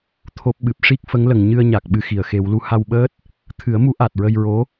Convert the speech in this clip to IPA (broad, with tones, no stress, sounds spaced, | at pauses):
t̪ʰ o˦˥ p̚ ɓ ɨ˨˩ p̚ ʂ i˦˥ k̚ f ə˧˥ ŋ l ə˨˩ ŋ ɲ ɨ˧ ə̯ ɲ a˨˩ k̚ ɓ ɨ˧ x i˨˩˨ ə̯ x e˨˩˦ w l u˧˥ h a˧ w ɓ əː˦˥ t̚ | t̪ʰ ɨ˨˩˦ ə̯ m u˧˥ ʔ a˨˩ t̚ ɹ ə˧ j ɹ o˧˥